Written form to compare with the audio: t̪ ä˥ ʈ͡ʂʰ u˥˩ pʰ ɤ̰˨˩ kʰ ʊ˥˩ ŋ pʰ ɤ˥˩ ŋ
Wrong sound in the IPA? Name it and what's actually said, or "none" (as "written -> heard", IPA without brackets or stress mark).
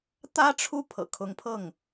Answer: ʊ˥˩ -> ʊ˧˥